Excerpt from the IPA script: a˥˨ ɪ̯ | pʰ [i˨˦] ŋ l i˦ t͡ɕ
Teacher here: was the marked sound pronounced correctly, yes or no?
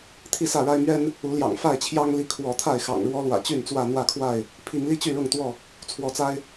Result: yes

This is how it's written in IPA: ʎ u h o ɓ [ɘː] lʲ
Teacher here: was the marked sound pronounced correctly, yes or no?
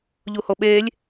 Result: no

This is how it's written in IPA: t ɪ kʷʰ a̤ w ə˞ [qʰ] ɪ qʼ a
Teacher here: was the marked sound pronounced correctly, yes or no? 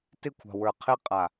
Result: yes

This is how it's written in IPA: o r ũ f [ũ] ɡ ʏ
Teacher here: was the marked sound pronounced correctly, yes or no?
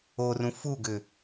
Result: no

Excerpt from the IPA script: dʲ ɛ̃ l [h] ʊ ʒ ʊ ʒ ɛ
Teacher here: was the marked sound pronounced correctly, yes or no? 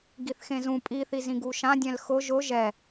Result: no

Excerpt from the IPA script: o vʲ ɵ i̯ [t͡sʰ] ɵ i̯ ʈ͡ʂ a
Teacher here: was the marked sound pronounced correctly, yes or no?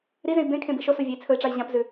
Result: yes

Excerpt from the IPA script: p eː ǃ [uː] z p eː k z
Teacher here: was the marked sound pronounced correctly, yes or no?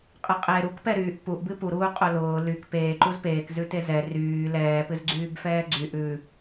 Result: no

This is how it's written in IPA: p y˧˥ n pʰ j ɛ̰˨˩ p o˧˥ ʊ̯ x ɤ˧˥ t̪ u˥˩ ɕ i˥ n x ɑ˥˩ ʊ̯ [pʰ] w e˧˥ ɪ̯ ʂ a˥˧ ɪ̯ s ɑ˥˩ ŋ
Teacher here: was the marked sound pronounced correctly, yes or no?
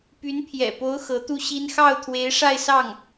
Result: no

